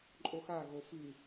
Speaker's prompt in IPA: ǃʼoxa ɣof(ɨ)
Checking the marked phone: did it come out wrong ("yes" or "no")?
no